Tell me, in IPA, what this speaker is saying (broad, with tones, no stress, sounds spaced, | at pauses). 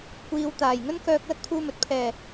kʷ iː˨ w t̪ aː˨˩ j ŋ ɵ˥ n k œː˧ k̚ l ɐ˥ k̚ t̪ʰ uː˧ m ɵ˨ t̚ pʰ ɛː˨˩